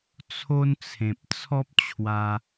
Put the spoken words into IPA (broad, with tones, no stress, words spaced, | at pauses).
t͡sʰo˦nt͡sʰẽ˨p̚ t͡sʰɔ˦p̚t͡ɕʰwa˧